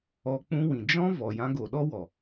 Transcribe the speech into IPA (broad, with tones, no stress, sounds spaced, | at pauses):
ɔ˧ k͡p ũ˦ w ĩ˨ d͡ʒ ɔ̃˦ v ɔ˨ j ã˧ ɡ o˨ ɗ ɔ˦ w ɔ˨